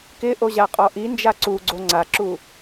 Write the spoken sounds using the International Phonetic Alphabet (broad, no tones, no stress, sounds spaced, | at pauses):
k ɪ ʔ o ʑ a qʼ ɔ ʔ i n d͡ʒ a ǀ u ɡ͡ǀ o ŋ͡ǀ a ǁ u